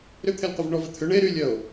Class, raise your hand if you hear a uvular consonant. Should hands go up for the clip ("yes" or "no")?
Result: yes